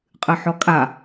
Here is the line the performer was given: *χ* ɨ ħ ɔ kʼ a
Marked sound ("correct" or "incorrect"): incorrect